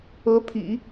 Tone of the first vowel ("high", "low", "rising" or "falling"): rising